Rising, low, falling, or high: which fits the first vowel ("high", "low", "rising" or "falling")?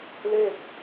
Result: falling